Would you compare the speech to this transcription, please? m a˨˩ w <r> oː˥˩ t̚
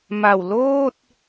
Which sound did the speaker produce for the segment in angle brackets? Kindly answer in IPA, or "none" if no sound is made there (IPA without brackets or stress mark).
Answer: l